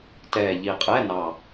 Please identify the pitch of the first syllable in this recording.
low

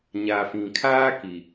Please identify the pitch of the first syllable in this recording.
low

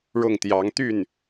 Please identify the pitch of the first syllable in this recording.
falling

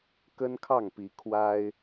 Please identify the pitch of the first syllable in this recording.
high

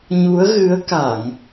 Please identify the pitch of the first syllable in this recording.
rising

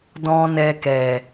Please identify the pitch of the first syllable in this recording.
low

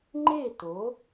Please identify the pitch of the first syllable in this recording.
falling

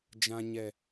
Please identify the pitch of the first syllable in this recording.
low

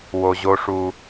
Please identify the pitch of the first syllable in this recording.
low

